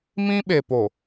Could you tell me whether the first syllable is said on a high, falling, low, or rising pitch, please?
high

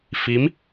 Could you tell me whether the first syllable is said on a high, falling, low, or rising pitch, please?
rising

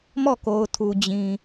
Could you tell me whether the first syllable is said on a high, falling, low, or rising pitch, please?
falling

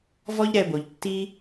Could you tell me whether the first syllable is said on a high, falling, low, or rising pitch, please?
high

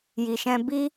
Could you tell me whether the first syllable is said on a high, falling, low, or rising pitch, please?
low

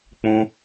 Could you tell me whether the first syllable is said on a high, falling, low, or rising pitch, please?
high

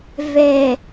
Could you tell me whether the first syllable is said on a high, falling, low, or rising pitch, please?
low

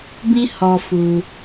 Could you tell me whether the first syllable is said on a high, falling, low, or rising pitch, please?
high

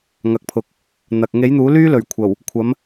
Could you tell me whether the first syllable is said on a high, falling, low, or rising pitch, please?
low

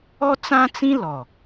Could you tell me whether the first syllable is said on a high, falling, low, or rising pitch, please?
high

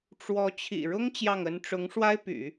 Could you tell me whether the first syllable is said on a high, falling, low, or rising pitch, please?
rising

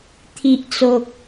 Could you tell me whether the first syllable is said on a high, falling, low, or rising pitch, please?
low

